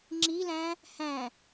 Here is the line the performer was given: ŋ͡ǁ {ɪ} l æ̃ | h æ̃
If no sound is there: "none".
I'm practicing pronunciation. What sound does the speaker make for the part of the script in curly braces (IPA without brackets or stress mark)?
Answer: i